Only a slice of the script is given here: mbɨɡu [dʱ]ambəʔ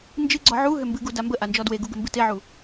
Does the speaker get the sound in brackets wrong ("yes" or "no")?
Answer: yes